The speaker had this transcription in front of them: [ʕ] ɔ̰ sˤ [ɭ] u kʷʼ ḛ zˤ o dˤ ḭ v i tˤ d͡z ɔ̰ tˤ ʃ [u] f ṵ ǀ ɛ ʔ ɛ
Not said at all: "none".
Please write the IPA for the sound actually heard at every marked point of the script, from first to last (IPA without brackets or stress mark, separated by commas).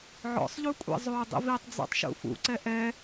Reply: ʕ, ʎ, ṵ